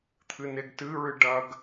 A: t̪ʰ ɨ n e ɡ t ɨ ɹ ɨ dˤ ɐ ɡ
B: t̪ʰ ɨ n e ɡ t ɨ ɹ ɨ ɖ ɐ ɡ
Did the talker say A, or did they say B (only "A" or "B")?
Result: B